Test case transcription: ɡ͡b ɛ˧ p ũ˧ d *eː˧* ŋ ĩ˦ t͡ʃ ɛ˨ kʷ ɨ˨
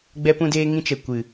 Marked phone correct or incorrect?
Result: correct